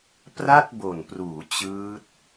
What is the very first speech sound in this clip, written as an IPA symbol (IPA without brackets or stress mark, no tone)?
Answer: p